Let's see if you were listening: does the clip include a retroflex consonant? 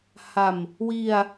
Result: no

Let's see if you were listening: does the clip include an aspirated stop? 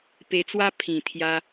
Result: yes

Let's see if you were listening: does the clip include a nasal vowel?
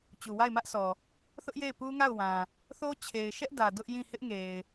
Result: yes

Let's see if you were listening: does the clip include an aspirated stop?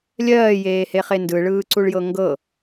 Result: no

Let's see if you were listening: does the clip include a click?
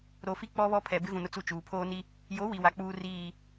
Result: no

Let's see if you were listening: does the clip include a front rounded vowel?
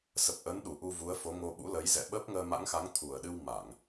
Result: no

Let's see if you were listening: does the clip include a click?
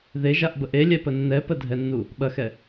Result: no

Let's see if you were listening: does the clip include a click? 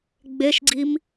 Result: yes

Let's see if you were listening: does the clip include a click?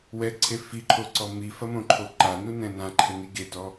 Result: yes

